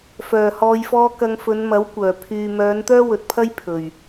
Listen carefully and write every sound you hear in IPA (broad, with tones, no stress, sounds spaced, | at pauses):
f œː˨˩ h ɔː˨ j f ɔː˧ k ɐ˧ ŋ f ɵ˨˧ n m ɐ˨˥ w kʷ œː˨˩ pʰ yː˨ m œː˨˧ n t̪ œː˥ w ɵ˨ t̚ pʰ ɐ˥ j pʰ ɵ˨˩ ɥ